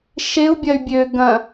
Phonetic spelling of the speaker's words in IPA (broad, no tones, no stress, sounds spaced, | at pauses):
ʃ e u̯ bʲ ɐ y̯ bʲ ø ɡ ɐ̃